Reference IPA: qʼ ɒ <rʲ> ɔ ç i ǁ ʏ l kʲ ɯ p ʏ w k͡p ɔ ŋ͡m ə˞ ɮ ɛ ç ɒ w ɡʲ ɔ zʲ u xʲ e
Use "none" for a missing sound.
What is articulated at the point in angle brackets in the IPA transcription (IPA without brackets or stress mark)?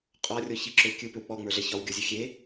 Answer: rʲ